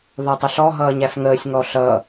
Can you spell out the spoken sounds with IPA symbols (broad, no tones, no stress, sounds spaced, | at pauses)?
ð ɒ tˤ ɪ ɬ ɔ ɦ ʌː ɲ æ f ŋ əː sʲ ŋ ɔ ɬ ʌ